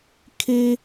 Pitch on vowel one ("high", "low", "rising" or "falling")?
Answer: high